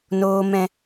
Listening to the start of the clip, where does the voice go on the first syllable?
low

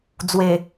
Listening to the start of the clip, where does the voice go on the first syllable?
low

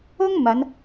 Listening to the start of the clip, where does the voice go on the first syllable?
high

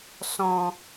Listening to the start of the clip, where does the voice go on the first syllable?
low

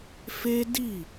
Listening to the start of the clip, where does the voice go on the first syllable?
high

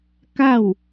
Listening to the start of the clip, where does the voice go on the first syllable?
falling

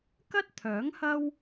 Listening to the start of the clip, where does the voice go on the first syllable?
high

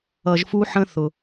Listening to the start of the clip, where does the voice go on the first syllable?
low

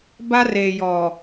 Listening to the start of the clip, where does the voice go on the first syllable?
high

